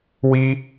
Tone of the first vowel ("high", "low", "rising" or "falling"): high